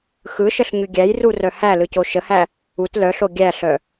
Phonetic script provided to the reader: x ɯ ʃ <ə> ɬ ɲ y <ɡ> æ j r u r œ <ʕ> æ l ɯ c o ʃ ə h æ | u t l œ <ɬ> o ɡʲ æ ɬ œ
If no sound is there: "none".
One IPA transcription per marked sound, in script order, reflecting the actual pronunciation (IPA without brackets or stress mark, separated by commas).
ə, ɡʲ, h, ɬ